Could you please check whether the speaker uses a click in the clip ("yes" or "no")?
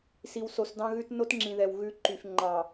yes